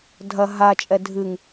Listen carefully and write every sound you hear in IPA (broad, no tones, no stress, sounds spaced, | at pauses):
dʱ ɐ ɦ a t͡ʃʼ ɛ dʱ ɨ ŋ